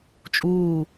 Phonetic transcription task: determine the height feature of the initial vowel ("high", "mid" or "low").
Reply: high